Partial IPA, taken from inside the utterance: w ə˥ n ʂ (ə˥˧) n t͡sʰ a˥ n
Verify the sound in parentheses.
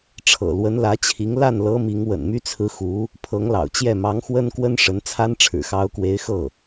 incorrect: ə˧˥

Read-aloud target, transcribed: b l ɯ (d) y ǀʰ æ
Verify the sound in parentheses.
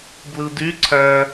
correct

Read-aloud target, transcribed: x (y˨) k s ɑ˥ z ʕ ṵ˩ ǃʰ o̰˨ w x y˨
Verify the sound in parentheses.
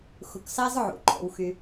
incorrect: u˨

